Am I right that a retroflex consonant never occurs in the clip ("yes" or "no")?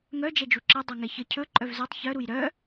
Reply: yes